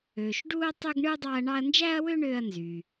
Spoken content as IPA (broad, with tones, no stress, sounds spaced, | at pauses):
øː˨ ʃ ɖ uː˥ ɐ̯ tˤ ø˥ ɡ ɳ ɯː˥ dˤ ɑ˦ ɐ̯ ɳ ɑ˦ ɐ̯ n d͡ʒ æ˥ ɐ̯ w ø˥ ɳ øː˦ ɐ̯ n z yː˩